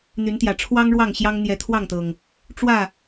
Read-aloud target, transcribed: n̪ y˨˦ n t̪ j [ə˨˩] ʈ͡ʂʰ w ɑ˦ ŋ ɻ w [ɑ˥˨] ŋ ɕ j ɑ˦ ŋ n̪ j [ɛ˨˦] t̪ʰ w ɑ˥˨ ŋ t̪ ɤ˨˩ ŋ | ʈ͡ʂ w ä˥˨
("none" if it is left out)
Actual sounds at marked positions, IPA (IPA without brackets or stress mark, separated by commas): ä˨˩, ɑ˥˨, ɛ˨˦